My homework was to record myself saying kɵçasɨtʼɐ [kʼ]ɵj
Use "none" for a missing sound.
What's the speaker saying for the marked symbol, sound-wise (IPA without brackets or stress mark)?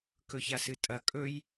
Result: kʼ